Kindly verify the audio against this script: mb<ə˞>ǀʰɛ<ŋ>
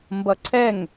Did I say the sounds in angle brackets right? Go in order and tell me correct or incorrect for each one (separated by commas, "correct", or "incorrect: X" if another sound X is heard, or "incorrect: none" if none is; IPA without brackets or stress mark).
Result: incorrect: ʌ, correct